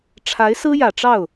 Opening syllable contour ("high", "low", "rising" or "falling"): rising